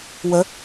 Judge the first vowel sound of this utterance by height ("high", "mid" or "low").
mid